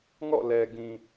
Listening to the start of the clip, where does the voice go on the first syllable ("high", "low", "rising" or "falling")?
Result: falling